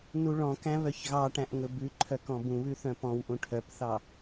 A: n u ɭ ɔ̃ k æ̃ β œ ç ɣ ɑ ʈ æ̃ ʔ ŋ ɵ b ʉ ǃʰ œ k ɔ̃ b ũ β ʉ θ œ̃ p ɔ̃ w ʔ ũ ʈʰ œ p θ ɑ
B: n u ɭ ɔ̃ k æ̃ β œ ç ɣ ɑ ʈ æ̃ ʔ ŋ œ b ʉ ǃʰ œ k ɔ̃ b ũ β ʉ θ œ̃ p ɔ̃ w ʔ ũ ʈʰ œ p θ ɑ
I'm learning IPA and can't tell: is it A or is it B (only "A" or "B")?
A